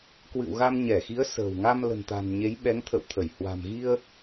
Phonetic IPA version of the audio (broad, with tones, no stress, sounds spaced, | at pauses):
k w ɨ̰˧˨ w ɣ a˧ m ɲ ɛ˧˩ x i˨˦ ə̯ s ə̤ː˨˩ w ŋ a˧ m l ə̤˨˩ n t̪ a̤˨˩ n ɲ e˨˦ j ɓ ɛ˨˦ ŋ t̪ʰ ə̰˧˨ w t̪ʰ ə˧˩ j h w a̤˨˩ m ɣ i˧ ə̯